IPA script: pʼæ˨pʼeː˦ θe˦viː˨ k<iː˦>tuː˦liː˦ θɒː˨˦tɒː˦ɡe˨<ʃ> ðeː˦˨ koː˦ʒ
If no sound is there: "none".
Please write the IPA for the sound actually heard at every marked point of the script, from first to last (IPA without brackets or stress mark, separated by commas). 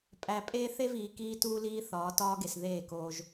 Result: iː˦, s